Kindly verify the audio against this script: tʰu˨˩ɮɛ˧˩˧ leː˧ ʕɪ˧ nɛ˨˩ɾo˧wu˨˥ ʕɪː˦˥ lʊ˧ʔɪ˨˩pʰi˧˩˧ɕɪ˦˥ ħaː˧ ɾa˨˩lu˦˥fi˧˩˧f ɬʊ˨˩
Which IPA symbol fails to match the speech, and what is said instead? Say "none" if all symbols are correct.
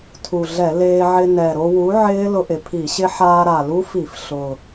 none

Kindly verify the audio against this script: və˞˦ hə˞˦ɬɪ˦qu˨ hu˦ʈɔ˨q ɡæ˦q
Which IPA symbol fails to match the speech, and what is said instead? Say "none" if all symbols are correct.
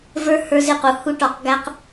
ɬ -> z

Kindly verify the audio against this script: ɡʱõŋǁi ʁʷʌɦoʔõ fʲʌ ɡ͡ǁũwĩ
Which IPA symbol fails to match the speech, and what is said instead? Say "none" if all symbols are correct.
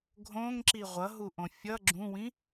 o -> u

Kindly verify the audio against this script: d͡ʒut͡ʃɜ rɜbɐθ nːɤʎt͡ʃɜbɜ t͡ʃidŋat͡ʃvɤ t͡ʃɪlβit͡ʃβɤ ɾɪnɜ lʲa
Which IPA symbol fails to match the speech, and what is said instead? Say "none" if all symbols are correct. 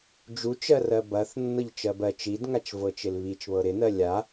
none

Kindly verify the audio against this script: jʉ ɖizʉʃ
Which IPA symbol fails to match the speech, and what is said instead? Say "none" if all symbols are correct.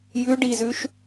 none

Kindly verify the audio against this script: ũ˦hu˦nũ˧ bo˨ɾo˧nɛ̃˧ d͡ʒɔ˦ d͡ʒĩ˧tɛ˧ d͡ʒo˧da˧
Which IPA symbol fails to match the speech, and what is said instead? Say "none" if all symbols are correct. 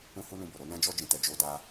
none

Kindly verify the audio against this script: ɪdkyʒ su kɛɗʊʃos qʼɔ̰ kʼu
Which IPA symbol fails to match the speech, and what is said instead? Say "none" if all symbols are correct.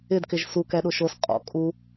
y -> ɪ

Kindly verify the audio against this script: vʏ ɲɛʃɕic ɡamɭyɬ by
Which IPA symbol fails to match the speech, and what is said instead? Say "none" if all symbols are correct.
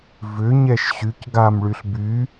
i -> y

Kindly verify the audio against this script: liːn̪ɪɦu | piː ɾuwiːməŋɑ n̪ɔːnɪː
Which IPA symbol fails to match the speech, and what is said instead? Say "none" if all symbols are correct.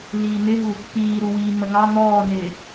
none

